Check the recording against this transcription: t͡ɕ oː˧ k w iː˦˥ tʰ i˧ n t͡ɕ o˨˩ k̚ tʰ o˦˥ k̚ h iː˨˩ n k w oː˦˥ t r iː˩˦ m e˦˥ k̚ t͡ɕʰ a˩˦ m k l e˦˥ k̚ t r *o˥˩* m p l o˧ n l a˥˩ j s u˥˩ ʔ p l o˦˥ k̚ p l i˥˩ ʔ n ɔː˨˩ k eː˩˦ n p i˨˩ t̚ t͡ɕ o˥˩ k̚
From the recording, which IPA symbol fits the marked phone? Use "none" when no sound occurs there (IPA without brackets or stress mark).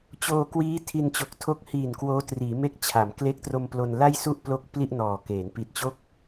o˧